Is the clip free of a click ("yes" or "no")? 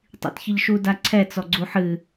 no